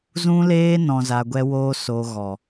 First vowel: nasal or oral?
nasal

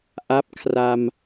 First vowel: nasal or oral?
oral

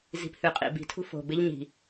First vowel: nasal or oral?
oral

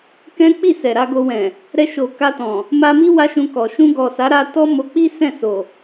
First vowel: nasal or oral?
nasal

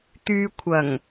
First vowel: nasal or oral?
oral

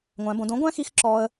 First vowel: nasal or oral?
nasal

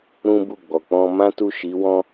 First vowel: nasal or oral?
nasal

